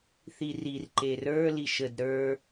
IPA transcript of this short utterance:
θ i r i r ǃ e r ə˞ l i ʃ ə d ɾ ə˞

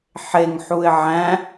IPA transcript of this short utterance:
ħ e ŋ ħ u ɪ̯ ʕ æ̃

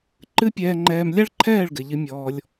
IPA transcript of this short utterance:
ǃ ɨ˦ pʲ ɛː˧ ŋ͡ǃ ɛː˧ m lʲ a˦ ɭ ǃʰ ɛː˦˨ ɭ ɡ ɘ˨ ʎ ɨ˧ mʲ ɔː˧ lʲ

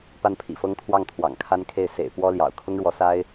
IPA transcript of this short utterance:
p a˥˩ n pʰ ḭ˨˩ f ɤ˥ ŋ t̪ʰ w ɑ˥˩ ŋ t̪ʰ w ɑ̰˨˩ ŋ kʰ a˥ n kʰ e˥˩ ɪ̯ s ḛ˨˩ ɪ̯ p w ɔ˥ l j ɑ̰˨˩ ʊ̯ kʰ ʊ˥ ŋ ɻ w ɔ˧˥ s a˥ ɪ̯

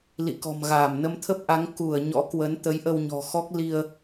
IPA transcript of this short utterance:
l ḭ˧˨ k ɔ̤˨˩ m ɣ aː˧˩ m n ə˧ m t̪ʰ ə˦˥ p̚ ʔ a˨˦ ŋ k u˧˩ ə̯ ɲ ɔ̰˧˥ k w ə˨˦ n t̪ ə˨˦ j ʔ ə˧ w ɲ ɔ̤˨˩ x ɔ˦˥ k̚ l i˧ ə̯

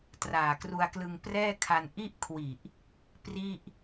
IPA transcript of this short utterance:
t r aː˨˩ k r u˧ a̯ k l ɯ˧ ŋ p r ɛː˥˩ kʰ a˧ n ʔ i˥˩ ʔ kʰ w i˨˩ ʔ | p r i˥˩ ʔ

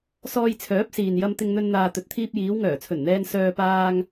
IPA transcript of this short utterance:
s ɔː˧ j t͡sʰ œː˨˥ p̚ s iː˨ n j ɐ˧ m t̪ ɪ˧ ŋ n̪ ɵ˧ n n̪ aː˨ t̪ ɵ˨ t̚ t̪ʰ iː˧ p̚ j iː˨˧ w ŋ œː˨˩ t͡sʰ ɵ˨˩ n n̪ ɛː˧ n s œː˧ p aː˧ ŋ

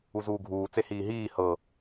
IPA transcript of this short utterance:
u z uː ɡʱ uː t͡s e h iː ɦ iː h ɤ

